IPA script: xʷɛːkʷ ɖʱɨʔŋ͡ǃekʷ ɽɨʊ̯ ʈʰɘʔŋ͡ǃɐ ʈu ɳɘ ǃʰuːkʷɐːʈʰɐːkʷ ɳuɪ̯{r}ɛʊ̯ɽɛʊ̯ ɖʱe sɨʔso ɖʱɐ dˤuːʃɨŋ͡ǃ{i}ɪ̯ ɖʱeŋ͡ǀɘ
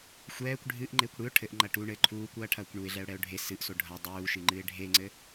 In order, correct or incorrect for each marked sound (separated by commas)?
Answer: incorrect, incorrect